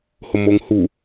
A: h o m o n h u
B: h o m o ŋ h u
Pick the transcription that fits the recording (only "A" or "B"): B